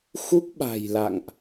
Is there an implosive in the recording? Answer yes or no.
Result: yes